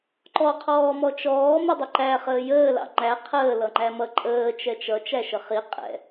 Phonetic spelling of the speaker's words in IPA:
ǃ ɔ qʰ ɔː m ɔ t͡ʃ ɔː m ɪ dˤ ɪ ǃ æ χ əː j əː l ɑ̰ ŋ͡ǃ æ qʰ əː l ʌ ŋ͡ǃ æ m ʌ ǃʼ əː t͡ʃ ɛ t͡ʃ ʌ t͡ʃ æ ʃ ə χ i qʼ ɛ̰

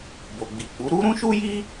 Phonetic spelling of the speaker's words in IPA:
b o˨ ɡ͡b i˨ k͡p u˨˦ ɾ u˦ ɾ ũ˦ ʃ u˦ j i˦

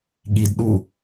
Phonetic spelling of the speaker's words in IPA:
ɠ i d ɗ u

